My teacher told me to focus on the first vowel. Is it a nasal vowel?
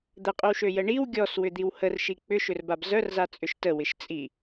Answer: no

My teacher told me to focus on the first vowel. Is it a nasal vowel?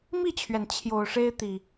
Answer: no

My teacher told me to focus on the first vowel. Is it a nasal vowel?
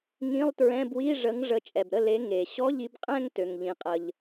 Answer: yes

